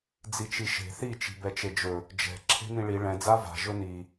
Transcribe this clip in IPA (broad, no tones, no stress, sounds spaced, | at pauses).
d͡z i t͡ʃ i ʃ e̤ θ i t͡ʃ i̤ b ɛ t͡ʃ e d͡ʒ ɵ | d͡ʒ ɛ̤ ǁʰ e̤ n ĩ ɭ i ɭ ɛ̃ d͡z a v a̤ ʒ ɵ n i